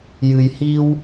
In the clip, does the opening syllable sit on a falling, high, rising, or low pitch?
low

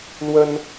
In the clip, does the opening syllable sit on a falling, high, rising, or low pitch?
high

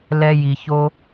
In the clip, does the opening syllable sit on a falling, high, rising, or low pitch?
high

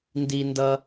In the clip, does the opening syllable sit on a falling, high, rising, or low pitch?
high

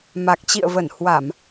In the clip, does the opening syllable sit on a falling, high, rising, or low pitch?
low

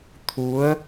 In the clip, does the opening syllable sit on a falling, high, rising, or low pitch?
rising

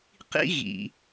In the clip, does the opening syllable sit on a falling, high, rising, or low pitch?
high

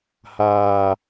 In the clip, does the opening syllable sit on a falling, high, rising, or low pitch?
low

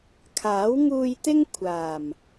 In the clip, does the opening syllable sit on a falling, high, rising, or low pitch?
rising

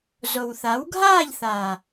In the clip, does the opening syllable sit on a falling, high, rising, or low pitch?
low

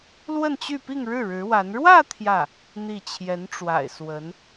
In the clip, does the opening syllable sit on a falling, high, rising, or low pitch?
falling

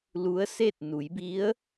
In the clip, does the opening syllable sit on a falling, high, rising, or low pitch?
rising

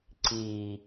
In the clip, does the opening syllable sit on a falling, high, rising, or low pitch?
low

